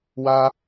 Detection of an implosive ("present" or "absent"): absent